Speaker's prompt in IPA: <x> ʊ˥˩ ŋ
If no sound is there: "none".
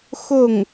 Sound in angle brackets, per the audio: x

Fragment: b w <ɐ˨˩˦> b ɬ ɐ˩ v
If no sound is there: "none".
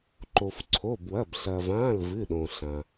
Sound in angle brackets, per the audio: ɐ˩˧˩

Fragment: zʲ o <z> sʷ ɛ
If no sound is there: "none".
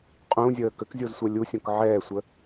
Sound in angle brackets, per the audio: z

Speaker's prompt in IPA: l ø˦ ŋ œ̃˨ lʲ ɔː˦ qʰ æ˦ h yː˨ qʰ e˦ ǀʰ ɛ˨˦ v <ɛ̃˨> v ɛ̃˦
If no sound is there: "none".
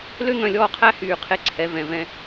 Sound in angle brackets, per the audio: ɛ̃˨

